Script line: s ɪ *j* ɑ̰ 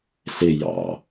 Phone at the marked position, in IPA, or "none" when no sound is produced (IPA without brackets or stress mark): j